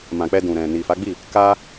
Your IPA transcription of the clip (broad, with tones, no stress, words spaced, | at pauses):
mã˨k͡pɛ˧dũ˨ɾɛ̃˨ ni˨fa˨˦ɡ͡bi˦˨ | ka˦